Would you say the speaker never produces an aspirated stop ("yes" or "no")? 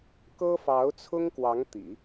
no